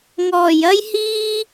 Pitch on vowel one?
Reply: low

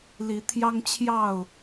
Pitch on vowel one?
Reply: rising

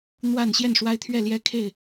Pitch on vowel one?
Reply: falling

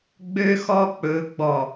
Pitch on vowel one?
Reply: high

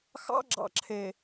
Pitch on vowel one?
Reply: high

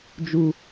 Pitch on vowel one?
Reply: high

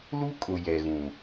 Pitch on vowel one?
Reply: high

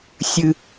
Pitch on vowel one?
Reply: high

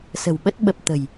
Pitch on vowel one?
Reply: low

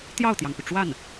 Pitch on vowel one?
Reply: falling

